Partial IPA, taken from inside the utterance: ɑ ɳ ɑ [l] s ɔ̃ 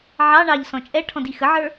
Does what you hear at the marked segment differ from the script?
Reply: yes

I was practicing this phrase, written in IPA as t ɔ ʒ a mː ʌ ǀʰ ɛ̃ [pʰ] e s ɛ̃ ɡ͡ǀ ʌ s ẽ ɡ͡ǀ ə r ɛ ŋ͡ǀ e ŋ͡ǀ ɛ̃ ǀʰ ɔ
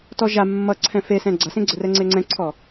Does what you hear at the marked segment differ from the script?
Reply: yes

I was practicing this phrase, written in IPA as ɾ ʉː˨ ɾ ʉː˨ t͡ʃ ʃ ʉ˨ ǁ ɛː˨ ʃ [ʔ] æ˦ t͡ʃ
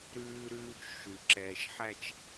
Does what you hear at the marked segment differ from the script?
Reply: yes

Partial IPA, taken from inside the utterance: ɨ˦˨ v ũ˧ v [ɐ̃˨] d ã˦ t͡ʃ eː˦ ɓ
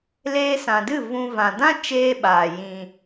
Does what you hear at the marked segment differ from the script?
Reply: yes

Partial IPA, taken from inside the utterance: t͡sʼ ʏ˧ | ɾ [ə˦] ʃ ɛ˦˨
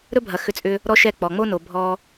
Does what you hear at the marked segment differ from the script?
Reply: yes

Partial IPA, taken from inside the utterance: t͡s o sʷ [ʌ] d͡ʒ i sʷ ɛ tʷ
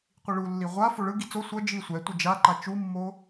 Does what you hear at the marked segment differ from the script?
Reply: no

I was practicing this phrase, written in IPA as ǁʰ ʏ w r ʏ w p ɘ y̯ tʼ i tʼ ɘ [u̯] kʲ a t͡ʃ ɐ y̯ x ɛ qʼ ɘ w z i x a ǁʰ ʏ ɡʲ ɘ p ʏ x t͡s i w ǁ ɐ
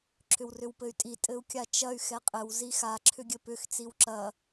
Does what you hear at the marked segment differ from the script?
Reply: no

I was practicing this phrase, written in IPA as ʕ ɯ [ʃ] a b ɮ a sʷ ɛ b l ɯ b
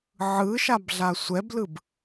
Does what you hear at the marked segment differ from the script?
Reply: no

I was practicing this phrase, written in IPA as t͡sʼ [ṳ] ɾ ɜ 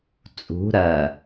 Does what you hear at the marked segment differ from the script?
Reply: no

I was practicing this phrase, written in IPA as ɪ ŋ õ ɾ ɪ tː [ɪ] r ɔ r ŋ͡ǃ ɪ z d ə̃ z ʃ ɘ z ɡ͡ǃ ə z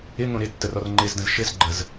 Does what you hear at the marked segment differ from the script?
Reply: yes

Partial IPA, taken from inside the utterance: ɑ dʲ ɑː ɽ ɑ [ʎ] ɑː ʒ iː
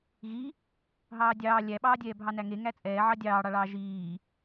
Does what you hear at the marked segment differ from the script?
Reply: yes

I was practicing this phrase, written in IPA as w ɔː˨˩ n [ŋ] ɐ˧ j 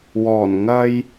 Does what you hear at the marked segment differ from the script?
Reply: no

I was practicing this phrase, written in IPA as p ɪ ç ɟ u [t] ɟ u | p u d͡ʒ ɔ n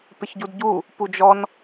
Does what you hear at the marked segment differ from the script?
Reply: yes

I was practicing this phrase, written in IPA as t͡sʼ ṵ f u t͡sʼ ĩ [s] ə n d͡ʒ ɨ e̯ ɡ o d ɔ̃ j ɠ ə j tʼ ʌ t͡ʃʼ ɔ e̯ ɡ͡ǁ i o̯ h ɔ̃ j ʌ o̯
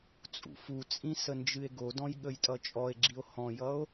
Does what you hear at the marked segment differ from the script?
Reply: no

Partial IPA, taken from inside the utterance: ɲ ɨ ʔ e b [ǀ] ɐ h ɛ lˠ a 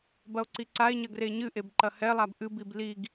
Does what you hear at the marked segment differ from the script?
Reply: yes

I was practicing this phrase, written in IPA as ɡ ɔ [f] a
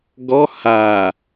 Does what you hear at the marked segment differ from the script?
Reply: yes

